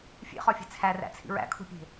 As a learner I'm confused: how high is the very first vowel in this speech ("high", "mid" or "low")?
mid